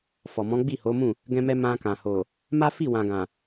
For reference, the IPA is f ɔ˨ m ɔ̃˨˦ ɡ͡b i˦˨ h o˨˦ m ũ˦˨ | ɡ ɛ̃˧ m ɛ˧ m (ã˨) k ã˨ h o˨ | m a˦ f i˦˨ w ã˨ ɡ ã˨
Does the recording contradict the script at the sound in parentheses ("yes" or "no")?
yes